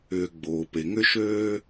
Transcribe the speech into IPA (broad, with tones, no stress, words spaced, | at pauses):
ʏː˨ɡ͡boː˩pe˩ ŋʏ˥ʃøː˥